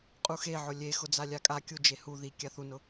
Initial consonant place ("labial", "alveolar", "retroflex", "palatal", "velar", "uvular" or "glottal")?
uvular